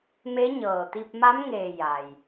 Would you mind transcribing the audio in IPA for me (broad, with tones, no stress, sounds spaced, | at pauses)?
m e˧˥ ɲ ɤː˩ t̪ i˧ p̚ m a˧˥ m ŋ eː˧˩ j a˩ j